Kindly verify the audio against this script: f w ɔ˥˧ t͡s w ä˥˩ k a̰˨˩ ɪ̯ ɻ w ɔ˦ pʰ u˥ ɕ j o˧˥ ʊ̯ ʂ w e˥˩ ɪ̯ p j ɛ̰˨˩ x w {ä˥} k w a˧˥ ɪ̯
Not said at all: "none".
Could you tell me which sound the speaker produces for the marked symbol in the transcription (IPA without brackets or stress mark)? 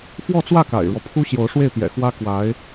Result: ä˥